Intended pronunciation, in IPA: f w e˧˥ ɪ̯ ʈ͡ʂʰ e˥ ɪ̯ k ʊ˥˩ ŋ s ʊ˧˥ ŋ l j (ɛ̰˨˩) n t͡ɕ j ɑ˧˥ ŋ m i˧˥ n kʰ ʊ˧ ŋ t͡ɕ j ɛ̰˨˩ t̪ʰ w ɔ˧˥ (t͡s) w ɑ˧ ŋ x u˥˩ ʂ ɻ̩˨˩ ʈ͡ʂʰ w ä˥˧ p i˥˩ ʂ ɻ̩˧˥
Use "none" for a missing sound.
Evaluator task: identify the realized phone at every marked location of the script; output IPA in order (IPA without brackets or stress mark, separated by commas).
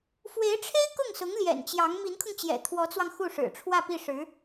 ɛ̰˨˩, t͡s